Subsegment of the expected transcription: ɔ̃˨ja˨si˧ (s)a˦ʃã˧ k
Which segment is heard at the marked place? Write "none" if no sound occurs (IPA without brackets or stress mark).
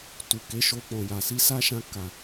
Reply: s